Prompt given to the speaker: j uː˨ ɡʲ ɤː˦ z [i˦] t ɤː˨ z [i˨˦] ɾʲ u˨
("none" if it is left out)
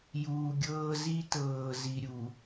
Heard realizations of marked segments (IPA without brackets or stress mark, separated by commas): i˦, i˨